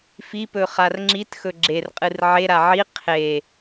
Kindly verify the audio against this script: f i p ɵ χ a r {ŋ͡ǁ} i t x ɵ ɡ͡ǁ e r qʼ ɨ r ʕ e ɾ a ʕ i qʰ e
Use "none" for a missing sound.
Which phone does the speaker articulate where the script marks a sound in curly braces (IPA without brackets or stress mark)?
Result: ŋ͡ǁ